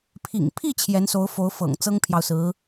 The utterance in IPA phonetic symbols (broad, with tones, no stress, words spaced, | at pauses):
pʰḭ˨˩ŋpʰi˥˩ t͡ɕʰjɛ˧˥nso˧˥ʊ̯fo˧˥ʊ̯ fɤ̰˨˩ŋ t͡sɤ˥ŋpʰjɑ˨ʊ̯sɹ̩˧˥